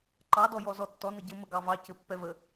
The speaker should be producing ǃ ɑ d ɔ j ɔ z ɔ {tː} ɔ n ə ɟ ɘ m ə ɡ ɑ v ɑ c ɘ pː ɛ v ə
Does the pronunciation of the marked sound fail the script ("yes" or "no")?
no